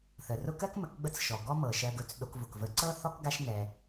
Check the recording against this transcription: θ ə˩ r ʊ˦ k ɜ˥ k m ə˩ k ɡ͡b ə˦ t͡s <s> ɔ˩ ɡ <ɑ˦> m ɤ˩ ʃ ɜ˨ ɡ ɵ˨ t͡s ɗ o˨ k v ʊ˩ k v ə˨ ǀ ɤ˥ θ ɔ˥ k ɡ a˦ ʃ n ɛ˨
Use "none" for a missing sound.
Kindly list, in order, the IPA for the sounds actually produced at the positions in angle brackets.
ʃ, ɔ˦

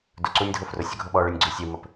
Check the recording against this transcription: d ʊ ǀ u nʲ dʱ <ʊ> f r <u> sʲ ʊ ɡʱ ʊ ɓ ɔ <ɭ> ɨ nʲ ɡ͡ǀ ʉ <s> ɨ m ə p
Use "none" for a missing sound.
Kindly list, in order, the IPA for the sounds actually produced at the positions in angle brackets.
ʊ, ʊ, ɭ, sʲ

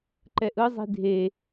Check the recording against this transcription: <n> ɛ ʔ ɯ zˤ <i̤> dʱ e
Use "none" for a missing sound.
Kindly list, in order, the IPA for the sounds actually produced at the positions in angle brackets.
ǃ, i̤

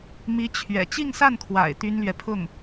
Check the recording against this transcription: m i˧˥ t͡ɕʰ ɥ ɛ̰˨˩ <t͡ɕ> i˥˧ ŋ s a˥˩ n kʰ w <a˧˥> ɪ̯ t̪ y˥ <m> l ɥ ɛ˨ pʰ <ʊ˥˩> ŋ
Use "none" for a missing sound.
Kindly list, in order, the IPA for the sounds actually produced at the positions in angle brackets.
t͡ɕ, a̰˨˩, n, ʊ˥˩

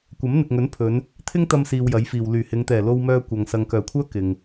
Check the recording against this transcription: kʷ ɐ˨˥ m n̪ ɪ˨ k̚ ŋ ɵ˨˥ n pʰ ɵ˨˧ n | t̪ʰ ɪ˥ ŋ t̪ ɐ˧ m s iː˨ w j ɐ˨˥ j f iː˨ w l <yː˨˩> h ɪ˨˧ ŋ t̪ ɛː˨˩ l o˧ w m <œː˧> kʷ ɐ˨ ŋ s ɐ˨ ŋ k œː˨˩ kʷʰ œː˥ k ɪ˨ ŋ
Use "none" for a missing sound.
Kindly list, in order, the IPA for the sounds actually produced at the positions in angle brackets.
yː˨˩, œː˧

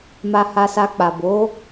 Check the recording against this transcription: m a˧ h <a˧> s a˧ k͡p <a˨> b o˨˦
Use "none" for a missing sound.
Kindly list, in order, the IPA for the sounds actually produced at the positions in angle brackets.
a˧, a˨

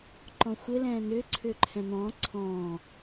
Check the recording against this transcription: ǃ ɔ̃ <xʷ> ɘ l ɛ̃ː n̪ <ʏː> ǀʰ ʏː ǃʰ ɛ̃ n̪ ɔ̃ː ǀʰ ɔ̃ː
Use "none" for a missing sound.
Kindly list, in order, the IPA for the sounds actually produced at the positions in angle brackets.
xʷ, ʏː

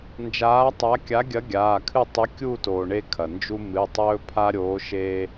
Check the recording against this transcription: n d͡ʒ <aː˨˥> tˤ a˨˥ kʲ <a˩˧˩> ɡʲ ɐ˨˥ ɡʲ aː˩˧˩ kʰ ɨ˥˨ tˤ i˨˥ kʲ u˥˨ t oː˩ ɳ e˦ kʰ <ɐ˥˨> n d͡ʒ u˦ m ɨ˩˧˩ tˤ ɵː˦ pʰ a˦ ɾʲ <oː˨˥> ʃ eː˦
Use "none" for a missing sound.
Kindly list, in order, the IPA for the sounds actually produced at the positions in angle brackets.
aː˨˥, a˨˥, ɐ˩, oː˨˥

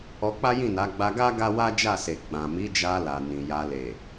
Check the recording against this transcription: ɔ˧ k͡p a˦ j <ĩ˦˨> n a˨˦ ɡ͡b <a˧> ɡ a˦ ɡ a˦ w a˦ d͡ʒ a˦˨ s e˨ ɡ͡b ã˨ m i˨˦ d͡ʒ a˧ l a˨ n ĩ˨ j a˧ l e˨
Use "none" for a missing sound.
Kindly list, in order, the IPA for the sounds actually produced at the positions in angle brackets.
ĩ˦˨, a˧

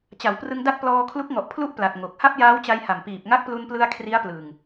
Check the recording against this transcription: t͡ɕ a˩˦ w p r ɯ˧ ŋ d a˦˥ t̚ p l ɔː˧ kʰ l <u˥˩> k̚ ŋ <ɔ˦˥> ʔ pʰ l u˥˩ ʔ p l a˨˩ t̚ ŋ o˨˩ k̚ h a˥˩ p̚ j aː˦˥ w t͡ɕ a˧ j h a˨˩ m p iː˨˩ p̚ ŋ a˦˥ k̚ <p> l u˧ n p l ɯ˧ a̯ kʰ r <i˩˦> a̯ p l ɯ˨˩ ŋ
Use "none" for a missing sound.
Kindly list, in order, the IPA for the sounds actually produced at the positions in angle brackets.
u˦˥, ɔ˨˩, p, i˦˥

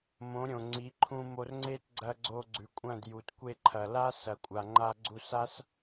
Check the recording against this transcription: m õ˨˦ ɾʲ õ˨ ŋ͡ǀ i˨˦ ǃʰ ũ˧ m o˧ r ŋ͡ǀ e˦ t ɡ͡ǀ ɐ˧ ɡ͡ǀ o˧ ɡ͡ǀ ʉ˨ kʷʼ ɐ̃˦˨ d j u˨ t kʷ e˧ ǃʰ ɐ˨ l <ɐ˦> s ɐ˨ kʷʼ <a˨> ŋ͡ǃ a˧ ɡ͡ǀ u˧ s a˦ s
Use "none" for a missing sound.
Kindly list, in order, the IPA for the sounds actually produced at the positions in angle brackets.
a˦, a˨

